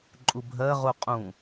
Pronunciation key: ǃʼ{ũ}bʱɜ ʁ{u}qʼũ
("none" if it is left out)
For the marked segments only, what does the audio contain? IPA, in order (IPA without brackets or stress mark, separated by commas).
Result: u, u